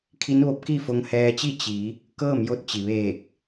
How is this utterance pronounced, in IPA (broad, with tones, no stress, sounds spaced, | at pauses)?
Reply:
kʰ i˧˥ n ʋ o˧˥ p̚ k i˥˨ f o˧ ŋ h ɛː˧ t͡ɕ i˥˨ t͡ɕ i˩˧ | k ɤː˥˨ m j o˧˥ t̚ t͡ɕ i˩ ʋ eː˧˩ k̚